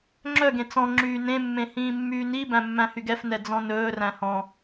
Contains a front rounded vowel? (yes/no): yes